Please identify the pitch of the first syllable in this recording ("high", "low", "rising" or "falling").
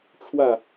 falling